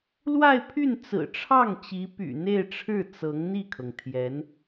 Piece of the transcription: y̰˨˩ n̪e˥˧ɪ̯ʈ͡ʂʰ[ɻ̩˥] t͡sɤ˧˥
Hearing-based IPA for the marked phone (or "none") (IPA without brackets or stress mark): ɻ̩˥˩